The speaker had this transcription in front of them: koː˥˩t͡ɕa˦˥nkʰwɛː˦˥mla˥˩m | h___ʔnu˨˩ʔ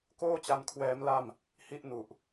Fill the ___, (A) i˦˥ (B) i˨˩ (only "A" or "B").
A